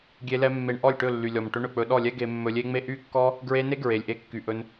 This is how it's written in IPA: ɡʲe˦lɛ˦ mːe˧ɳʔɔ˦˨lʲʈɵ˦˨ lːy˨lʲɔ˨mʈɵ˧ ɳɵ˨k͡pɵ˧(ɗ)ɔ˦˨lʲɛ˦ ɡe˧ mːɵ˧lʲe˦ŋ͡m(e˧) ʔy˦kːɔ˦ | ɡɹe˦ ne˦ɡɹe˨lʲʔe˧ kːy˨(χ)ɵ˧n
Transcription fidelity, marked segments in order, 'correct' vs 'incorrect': correct, incorrect, incorrect

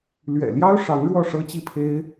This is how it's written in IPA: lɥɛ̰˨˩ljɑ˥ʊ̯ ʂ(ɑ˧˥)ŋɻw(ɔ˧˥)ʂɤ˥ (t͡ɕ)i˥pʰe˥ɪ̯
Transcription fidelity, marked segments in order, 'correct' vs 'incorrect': correct, incorrect, correct

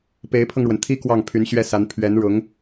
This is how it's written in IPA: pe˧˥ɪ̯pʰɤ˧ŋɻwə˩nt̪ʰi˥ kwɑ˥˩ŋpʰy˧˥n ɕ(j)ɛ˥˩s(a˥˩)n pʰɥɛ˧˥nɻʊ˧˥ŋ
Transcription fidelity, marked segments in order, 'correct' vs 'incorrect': incorrect, incorrect

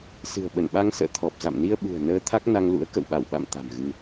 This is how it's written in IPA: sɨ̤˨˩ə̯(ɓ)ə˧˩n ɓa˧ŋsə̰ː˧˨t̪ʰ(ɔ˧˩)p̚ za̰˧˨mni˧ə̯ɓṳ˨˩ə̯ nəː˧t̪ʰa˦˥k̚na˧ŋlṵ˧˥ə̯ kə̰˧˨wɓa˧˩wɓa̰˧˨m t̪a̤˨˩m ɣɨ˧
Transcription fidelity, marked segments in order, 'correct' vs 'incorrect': correct, incorrect

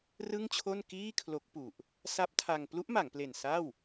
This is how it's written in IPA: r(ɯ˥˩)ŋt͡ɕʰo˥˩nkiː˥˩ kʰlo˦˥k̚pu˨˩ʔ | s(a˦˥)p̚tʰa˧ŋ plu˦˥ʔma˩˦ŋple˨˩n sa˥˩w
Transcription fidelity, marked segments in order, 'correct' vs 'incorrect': correct, correct

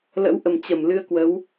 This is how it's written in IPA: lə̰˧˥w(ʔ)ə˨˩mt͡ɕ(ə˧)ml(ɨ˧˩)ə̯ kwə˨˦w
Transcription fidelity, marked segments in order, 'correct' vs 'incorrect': correct, incorrect, incorrect

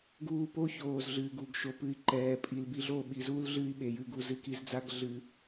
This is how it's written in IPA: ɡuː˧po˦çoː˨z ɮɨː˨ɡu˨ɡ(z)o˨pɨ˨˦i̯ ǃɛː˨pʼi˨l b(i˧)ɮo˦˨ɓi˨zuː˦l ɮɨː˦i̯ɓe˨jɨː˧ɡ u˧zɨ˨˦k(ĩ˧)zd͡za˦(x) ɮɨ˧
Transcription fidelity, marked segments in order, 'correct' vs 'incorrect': incorrect, correct, incorrect, incorrect

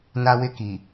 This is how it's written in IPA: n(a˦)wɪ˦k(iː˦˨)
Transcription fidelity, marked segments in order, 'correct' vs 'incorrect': correct, incorrect

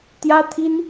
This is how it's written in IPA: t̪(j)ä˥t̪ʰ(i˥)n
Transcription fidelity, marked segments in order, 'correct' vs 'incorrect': correct, correct

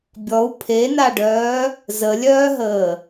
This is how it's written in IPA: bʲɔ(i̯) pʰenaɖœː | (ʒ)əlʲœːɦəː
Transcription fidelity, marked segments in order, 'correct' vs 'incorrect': incorrect, incorrect

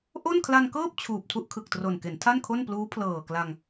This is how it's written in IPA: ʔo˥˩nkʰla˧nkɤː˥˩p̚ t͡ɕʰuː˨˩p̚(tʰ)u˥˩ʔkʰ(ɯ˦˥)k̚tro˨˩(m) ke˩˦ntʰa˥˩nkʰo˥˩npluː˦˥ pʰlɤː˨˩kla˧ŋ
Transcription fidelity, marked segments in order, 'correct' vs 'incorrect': correct, incorrect, incorrect

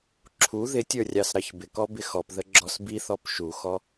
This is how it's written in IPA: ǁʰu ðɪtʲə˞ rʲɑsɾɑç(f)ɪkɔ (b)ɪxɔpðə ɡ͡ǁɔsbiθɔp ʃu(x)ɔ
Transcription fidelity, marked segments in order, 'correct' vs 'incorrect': incorrect, correct, correct

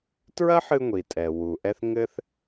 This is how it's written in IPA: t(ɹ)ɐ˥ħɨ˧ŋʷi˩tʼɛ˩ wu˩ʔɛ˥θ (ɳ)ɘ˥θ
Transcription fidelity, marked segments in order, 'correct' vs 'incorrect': correct, incorrect

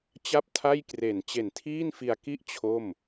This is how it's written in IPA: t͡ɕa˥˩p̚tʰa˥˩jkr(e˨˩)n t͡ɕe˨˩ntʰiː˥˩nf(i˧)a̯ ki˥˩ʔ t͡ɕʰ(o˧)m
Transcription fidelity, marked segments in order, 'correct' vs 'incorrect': correct, correct, incorrect

